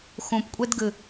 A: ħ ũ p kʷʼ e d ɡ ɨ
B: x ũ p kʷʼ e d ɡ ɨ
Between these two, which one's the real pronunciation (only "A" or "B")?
B